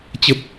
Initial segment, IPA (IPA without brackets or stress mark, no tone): t͡ɕ